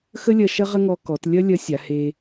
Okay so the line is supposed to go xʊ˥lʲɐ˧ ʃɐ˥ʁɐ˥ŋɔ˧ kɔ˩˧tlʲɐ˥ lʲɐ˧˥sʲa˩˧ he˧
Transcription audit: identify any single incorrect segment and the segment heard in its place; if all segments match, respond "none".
ʊ˥ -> ə˥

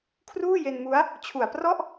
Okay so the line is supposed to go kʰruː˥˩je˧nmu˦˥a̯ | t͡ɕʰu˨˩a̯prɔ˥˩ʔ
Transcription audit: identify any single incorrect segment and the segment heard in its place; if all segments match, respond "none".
none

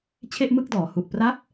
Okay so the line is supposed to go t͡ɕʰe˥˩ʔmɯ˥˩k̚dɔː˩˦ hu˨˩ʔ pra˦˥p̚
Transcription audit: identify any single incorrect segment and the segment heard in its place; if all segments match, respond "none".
none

